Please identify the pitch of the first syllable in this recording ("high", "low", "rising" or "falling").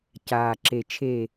low